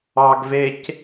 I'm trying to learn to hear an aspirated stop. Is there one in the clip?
no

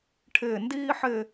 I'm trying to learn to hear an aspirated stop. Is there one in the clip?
yes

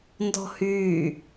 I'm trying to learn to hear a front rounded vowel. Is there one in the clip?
yes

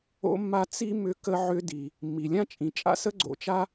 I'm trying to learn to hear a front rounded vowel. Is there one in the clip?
yes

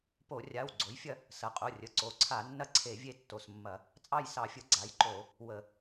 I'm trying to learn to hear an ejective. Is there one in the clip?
yes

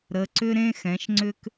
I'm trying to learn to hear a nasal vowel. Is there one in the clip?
yes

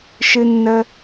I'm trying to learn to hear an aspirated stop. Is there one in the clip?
no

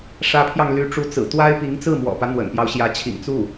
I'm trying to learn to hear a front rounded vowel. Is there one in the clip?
yes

